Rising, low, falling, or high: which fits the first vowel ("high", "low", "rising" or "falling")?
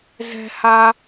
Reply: high